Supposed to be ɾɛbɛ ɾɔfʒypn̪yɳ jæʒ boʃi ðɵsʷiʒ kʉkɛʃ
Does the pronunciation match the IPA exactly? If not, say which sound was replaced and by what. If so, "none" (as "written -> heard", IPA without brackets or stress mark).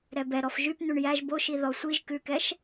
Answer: ɵ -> ɔ